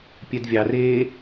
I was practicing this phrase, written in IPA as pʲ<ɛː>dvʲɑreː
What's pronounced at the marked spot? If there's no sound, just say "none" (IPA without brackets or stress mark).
ɛ